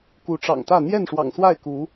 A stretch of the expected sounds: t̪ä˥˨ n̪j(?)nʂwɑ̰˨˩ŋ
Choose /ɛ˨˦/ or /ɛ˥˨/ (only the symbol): ɛ˥˨